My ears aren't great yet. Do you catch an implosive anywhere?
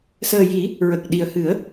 yes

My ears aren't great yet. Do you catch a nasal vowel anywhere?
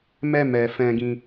yes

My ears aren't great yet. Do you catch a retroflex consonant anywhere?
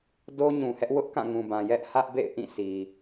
no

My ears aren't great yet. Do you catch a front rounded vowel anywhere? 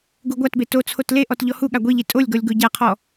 no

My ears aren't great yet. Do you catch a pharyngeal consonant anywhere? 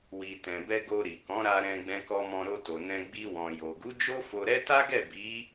no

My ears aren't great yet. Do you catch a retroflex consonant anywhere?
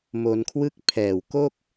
no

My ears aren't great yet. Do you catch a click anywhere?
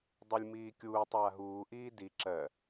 yes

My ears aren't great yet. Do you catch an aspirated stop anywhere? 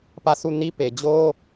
no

